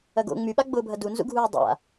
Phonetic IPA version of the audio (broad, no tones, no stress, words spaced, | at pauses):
ɐɡo̰ ŋ͡myɓaɡ͡bʊːbʱɐ dunzṵɡʱuː dˤa̰